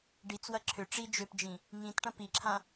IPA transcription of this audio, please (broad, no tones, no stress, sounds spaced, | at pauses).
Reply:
ɖ i t͡s w ɐ ǁʰ ʏ ʈ͡ʂ i d͡ʒ ø p d͡ʒ ĩ | ŋ ĩ t ʈ ɐ̃ p i ǁʰ ã